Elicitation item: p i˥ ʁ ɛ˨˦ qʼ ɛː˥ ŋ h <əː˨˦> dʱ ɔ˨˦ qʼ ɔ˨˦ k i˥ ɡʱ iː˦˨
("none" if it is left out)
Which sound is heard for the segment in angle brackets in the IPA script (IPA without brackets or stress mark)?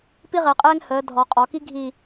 əː˨˦